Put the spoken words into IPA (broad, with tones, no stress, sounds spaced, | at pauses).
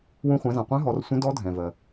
w ũ˧ χʷ ɛ̃˩˧ z ã˩ qʷ ɛ̃˧˥ ɦ ɔ˩˧ r sʷ ə̃˧˥ d ɔ˧˥ dʱ ɛ̃˩ v ɜ˩